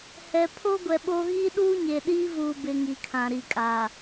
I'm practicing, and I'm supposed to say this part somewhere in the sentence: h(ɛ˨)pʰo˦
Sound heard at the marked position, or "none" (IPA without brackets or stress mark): ɛ˨